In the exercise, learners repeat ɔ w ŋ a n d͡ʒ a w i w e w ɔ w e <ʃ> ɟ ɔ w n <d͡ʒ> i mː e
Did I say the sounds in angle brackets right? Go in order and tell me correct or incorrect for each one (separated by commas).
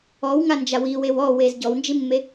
incorrect, correct